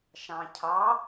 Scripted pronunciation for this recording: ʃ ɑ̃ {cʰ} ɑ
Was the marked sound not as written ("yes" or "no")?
no